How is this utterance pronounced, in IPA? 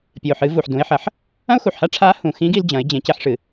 pʲ ɨ˩ ʊ̯ ħ ɨ˩˧ v u˩ ħ d ũ˩˧ ɪ̯ ħ ɐ˩˧ ħ | ɐ̃˥ ʊ̯ x u˩ ħ h a˥ ʈ͡ʂʰ a˧˥ h ũ˩ x ĩ˧˥ ɡ i˧ l d͡ʑ ɐ̃˩˧ ɪ̯ d͡ʑ ẽ˩˧ c e˧ ħ ʂ ɨ˩

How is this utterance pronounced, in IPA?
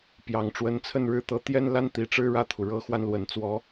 p j ɑ˨˩ ŋ ʈ͡ʂ w ə˧˥ n t͡sʰ ə˥˧ n ɻ ɻ̩˥˩ t̪ ɤ˧˥ t̪ j ɛ˥ n l a˥ n t̪ i˨˩ ʈ͡ʂ ɻ̩˥ ɻ ä˥˩ t̪ʰ u˩ ɻ ɤ˧˥ x w a˧ n l w ə˨˩ n t͡s w ɔ˧˥

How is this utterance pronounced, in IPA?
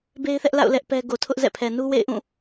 b e˦ ɪ̯ θ ɛ˦ ʔ l a̰˦˨ ʊ̯ l ɛ˦ ʔ p ɛ˦ ɡ o˨ tʰ ʊ˦ ʔ z ɛ̰˦˨ pʰ ɛ˨ n u˦ w ḛ˦˨ ɪ̯ ʔ ũ˦˨

